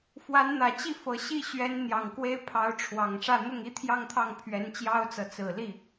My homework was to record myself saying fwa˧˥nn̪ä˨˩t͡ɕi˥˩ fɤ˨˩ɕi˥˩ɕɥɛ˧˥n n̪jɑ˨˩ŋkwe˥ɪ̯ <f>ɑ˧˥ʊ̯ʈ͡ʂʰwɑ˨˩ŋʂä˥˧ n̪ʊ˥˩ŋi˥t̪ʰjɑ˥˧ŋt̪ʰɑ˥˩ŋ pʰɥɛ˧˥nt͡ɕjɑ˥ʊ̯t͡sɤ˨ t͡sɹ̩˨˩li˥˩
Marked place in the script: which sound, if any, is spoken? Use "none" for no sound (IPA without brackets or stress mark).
pʰ